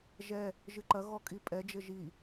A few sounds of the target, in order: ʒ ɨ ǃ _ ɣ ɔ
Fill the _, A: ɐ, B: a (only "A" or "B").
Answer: A